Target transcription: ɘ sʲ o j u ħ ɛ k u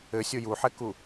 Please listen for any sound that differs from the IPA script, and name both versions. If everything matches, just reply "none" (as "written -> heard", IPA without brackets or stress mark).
none